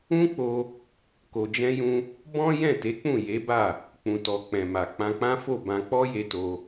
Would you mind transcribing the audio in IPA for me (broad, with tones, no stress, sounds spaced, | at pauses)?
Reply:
ũ˦ k͡p o˧ | k o˧ d͡ʒ ɛ̃˦ j ũ˦ | b ɔ̃˦ j ɛ̃˦˨ t e˨˦ k͡p ũ˦˨ j e˨˦ b a˦˨ | k͡p ũ˨ t ɔ˨ k͡p ɛ̃˨ m a˨ k͡p ã˧ k͡p ã˦ f o˦˨ b ã˧ k͡p ɔ˦ j e˧ t o˧